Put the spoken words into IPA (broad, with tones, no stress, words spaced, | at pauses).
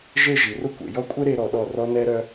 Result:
ʒe˥˧ʒi˩˧rʊ˥kʷḛ˩˧ jɔ˥˧kʷʼɛ˥ɾe˧ɾɔ˩˧ ɗɔ˧˩rɔ˧ nɛ˥ɾœ˥